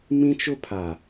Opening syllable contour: high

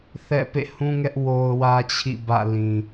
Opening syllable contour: falling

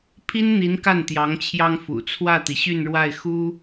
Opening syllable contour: high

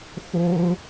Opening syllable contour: high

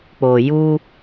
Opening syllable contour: low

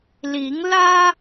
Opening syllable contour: rising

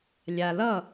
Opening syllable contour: low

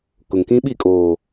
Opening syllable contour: low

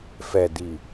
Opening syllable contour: low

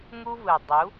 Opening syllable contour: high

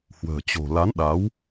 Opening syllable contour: low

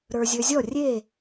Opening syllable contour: low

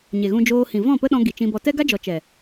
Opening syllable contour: low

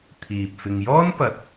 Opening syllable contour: low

